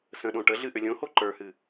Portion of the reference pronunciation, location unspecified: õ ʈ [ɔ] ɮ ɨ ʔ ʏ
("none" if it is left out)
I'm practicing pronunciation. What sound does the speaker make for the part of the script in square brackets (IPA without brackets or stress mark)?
ə